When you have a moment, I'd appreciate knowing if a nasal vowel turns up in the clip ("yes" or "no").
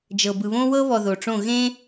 yes